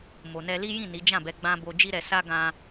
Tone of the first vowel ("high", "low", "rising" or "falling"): low